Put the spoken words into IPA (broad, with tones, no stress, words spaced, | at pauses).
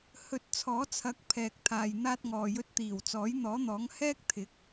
hɵ˧t̚ t͡sʰɔː˨˥t͡sʰɐ˨˥k̚ pʰɛː˨k̚t̪ʰaː˨j n̪aː˧t̚ŋɔː˨jɵ˧t̚t̪iː˨˩w t͡sɔː˨˥jn̪ɔː˨˥n̪ɔː˨˥ŋ hɛː˥k̚t̪ʰɪ˨˥k̚